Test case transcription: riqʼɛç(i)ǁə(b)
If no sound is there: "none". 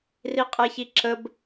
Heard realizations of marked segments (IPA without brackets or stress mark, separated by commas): i, b